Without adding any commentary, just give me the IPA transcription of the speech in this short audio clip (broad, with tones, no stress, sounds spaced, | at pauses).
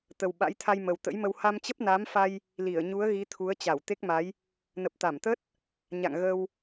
t̪ ə˨˩ w ɓ a̰˧˥ j t̪ʰ a˧ j m ə˨˩ w t̪ ə̰˧˥ j m ə˧ w h a˧ m t͡ɕ ə˦˥ p̚ n a˨˦ m f a˧ j | l i˧˩ ə̯ ɲ u˨˦ ə̯ ɣ i˨˦ t̪ʰ u˨˦ ə̯ t͡ɕ a˧˩ w t̪ e˦˥ k̚ m a˨˦ j | n ə˨˩ p̚ t̪ a˧˩ m t̪ ə˦˥ t̚ | ɲ a̰˧˨ ŋ ɣ ə˧ w